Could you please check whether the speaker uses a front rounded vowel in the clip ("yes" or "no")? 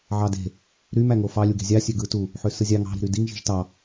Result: yes